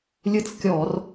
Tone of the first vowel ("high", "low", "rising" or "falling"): falling